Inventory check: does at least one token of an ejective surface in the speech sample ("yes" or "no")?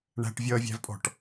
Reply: yes